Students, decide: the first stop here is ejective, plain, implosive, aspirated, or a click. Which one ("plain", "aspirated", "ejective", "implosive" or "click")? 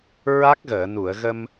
plain